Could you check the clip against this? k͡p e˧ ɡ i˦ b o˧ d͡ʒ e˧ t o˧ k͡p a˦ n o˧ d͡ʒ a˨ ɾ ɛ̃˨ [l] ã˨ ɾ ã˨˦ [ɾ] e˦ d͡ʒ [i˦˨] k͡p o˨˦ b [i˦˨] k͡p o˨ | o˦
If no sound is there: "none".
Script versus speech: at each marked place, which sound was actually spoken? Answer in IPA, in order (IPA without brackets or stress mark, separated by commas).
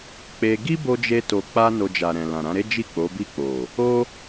l, ɾ, i˦˨, i˦˨